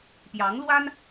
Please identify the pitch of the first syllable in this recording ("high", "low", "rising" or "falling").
rising